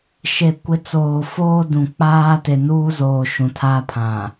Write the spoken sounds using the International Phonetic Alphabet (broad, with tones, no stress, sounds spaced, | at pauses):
ʃ e˨ kʷ ɪ˨˦ t͡s oː˨ f oː˦ d ũ˨ k͡p aː˦ t e˨ n uː˦ z oː˨ ʃ ũ˨ tʰ aː˦ pʰ ã˨